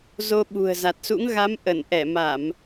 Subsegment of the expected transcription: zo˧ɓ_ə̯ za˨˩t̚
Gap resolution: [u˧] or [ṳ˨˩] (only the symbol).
ṳ˨˩